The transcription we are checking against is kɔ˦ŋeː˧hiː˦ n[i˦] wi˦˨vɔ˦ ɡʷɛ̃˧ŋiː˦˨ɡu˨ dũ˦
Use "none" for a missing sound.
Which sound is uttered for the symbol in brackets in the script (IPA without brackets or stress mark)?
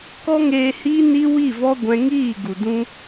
i˦